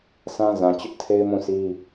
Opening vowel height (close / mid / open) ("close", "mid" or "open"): open